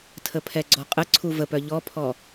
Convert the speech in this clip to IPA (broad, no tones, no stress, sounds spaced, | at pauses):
tʰ ə pʰ ɛ ɡ͡ǀ ɔ qʼ ə ǀʰ u v ə p œ ʎ ɔ pʰ ɔ